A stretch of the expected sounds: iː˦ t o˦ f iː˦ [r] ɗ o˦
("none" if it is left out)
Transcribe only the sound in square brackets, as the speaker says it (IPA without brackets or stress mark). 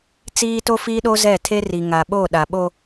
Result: none